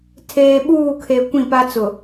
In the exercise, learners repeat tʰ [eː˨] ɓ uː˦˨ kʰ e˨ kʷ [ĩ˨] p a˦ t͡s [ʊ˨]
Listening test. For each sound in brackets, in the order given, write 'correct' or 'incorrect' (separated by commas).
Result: correct, incorrect, correct